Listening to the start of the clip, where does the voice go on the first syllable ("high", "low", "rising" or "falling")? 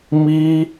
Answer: high